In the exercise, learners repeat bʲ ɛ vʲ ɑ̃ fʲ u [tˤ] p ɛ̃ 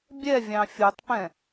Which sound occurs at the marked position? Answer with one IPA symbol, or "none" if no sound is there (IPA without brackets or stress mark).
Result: tˤ